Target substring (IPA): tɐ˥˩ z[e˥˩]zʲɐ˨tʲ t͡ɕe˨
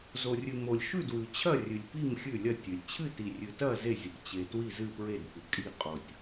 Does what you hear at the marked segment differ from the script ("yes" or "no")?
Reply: no